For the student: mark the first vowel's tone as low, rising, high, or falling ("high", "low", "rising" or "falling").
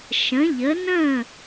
rising